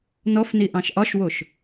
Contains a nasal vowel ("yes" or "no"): yes